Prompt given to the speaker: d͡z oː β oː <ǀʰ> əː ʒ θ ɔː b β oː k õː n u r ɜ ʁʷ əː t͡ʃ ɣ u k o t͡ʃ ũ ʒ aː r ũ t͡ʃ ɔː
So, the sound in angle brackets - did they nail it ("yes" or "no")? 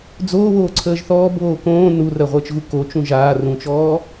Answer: yes